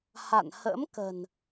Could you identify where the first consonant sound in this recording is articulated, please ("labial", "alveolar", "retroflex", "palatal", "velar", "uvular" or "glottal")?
glottal